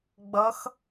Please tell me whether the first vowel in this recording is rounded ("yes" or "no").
no